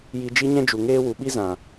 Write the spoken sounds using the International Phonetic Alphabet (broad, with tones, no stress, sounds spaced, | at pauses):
j i˧ d͡ʒ i˦ ɲ ɛ̃˦ d͡ʒ u˨ ŋ eː˦ w u˨ ɓ i˦ z ã˨